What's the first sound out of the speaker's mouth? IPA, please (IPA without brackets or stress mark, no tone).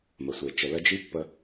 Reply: m